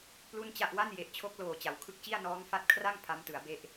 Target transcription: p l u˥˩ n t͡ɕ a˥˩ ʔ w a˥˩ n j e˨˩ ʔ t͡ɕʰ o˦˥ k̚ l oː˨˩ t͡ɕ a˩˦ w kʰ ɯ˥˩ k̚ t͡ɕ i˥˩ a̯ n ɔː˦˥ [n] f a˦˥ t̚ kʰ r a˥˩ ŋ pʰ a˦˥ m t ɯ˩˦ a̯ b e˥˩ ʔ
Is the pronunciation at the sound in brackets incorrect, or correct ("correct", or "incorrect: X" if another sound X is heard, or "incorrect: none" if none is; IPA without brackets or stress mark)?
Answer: incorrect: ŋ